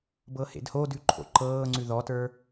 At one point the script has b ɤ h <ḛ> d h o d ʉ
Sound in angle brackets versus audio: correct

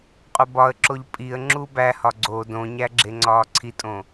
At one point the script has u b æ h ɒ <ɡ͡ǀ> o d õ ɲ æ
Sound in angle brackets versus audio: correct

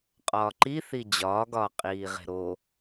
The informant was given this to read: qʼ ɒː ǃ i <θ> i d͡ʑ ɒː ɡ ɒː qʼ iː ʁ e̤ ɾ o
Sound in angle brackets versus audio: correct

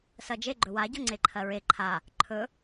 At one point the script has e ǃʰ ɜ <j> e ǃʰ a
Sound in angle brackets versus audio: incorrect: ɹ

